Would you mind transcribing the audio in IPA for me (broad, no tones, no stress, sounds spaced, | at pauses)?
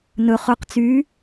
n ɵ χ ɵ q t͡s yː